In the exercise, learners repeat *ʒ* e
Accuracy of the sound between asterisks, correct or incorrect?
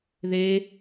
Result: incorrect